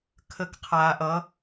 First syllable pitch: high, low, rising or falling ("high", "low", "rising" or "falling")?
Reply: rising